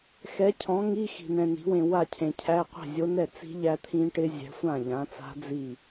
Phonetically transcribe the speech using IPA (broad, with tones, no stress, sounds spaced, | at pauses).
x ɛ˨˥ cʰ ɔ̃˨˥ ŋ i˧˥˧ x i̤˨ n ɛ̃˨ n i̤˨˥ w ẽ˨ w a˥˩ cʰ ẽ˨ cʰ æ˧˥˧ qʷ ɛ̤˥˩ zʲ o˦˥ n ɛ˥˩ t͡s i̤˦˥ ʎ æ˦˥ t̪ʰ ĩ˦˥ ʈ ɪ˦˥ zʲ ɛ̤˨˥ sʷ ã˥˩ ʎ ã˨˥ t͡s a̤˦˥ d͡z i˥˩